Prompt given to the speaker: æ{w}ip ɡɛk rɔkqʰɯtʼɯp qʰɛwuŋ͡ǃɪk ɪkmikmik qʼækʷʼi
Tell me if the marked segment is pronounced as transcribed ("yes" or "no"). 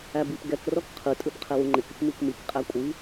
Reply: no